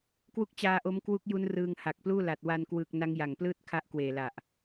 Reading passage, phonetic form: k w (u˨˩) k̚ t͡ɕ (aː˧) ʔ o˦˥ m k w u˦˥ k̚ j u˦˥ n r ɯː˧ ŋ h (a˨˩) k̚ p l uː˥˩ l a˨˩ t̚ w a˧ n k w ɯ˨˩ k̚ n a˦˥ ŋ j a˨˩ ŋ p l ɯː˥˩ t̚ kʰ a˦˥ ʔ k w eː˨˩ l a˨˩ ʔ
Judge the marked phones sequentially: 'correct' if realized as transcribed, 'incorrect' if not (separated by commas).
incorrect, correct, correct